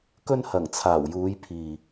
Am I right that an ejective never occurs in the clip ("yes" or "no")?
yes